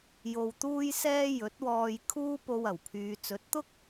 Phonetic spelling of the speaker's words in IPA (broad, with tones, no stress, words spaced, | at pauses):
jo˧wt̪uː˥jsɛː˥ jɵ˨˥t̚wɔː˧j kʰuː˥po˧w ɐ˨˩wpʰyː˨ t͡sɵ˨˥t̚t̪ʊ˥k̚